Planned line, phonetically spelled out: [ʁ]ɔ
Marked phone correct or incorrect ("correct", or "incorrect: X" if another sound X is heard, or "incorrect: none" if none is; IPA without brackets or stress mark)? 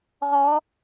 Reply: correct